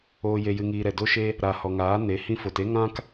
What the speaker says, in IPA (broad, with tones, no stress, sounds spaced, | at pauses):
oː˨ j e˨ j ɨ˨ ŋ iː˨ ɾ ɛ˨ d o˦ ʃ e˦ | ɾ a˨ h ɔ˨ ŋ aː˨˦ n e˨˦ h ĩ˧ f o˨ t e˦ ŋ ã˦ k